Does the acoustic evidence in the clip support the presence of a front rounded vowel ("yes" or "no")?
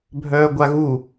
yes